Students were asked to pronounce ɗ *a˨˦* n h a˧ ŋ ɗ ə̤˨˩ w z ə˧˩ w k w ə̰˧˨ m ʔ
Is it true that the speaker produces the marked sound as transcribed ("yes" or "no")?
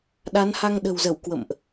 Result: yes